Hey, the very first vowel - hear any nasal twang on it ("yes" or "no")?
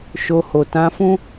no